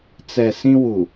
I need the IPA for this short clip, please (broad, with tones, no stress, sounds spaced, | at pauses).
t͡s ɛ˨ s ĩ˦ w u˨